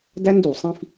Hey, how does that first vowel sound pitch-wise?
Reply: high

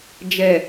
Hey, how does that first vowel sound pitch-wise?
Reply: low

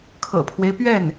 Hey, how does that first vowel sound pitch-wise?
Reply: low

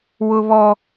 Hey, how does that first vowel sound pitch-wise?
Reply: high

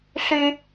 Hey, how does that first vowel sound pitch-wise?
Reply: high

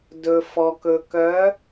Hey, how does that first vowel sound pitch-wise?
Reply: low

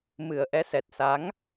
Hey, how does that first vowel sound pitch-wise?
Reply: low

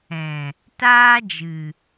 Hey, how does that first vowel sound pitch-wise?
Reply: low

